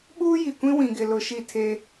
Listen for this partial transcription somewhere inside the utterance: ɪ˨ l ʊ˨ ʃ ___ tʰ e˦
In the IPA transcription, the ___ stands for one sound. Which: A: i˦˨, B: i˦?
A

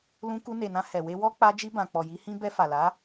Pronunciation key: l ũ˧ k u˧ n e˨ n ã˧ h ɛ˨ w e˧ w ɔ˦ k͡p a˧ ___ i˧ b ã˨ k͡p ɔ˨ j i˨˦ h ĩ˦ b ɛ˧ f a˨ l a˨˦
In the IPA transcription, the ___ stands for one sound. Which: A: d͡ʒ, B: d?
A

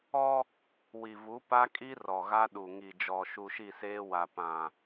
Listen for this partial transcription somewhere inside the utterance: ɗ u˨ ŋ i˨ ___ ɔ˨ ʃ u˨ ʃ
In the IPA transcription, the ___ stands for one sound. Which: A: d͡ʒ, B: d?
A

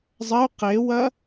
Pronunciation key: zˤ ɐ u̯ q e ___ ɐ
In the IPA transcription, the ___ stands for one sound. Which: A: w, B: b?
A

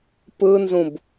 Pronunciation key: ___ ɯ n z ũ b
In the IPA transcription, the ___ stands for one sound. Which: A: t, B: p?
B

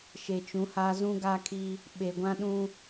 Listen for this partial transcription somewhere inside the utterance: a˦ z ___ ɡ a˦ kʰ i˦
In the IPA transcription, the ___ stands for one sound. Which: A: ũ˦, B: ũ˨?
A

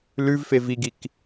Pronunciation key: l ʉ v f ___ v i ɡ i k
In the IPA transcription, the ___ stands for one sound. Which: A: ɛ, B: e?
B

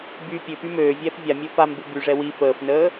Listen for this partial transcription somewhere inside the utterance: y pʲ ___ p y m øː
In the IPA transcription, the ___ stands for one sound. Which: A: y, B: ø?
B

